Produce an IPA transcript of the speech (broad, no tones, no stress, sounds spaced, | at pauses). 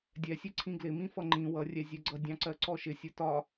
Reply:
dʲ ɛ sʲ ɛ ǀʰ ĩ ɡ l ɪ m ĩ f ʌ ŋ͡ǃ ĩ w ʌ rʲ ɛ zʲ ɛ ɡ͡ǀ ʌ dʲ ɑ̃ ǀ ɜ ǀ ɔ ʃ ɪ sʲ ʊ t ɒ